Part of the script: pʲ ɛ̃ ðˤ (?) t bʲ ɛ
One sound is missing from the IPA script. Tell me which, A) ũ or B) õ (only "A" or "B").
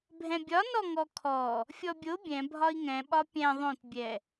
B